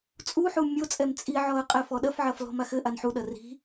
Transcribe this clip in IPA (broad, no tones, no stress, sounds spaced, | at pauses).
t͡sʼ u ħ u mʲ o t͡sʼ ɛ m t͡sʼ i ʕ ɔ ə̯ qʼ ɛ f ɔ ɗ ɐ f ʕ ɐ f l ɔ̤ m a x ɘ ʔ a n ħ u ɗ ɐ r i̤